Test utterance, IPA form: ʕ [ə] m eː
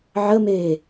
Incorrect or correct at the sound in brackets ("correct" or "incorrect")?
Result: correct